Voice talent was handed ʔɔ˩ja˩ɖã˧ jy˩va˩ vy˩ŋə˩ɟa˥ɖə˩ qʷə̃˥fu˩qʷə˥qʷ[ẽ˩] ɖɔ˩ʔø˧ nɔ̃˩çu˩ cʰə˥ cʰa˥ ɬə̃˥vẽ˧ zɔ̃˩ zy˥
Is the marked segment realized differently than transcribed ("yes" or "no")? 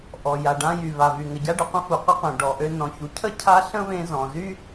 no